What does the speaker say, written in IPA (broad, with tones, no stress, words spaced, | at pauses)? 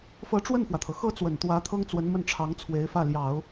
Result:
fɤ˧˥ʈ͡ʂwə˥˩nfwä˩t̪ʰɤ˩ xɤ˥t͡swə˨˩nt̪wä˧˥ t̪ʰɤ˥ŋt͡swə˧˥nmə˥˩nʈ͡ʂʰɑ˧˥ŋ t͡sʰwe˧˥ɪ̯fä˥˩ljɑ˨˩˦ʊ̯